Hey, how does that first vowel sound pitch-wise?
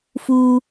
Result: high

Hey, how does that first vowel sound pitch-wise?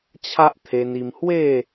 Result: high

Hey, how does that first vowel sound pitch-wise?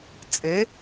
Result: rising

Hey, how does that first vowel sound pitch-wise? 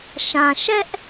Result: low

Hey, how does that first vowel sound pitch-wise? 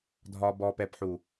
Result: low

